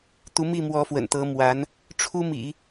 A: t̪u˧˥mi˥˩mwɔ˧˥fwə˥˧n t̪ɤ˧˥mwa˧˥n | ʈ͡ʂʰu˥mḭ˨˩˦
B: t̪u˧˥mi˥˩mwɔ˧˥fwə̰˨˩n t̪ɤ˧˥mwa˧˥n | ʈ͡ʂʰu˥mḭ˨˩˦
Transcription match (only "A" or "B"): B